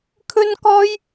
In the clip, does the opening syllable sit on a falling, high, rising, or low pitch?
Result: high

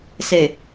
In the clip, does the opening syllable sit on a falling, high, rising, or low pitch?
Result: low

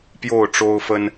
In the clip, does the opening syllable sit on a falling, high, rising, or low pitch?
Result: falling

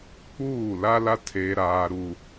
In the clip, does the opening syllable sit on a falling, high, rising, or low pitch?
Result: falling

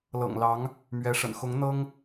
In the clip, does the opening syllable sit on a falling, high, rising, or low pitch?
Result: low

